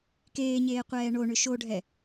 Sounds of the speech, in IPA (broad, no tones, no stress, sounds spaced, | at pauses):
k eː ɲ eː qʷ ɛː ɳ o ɳ ʏ ʃ o ɖʱ ɛ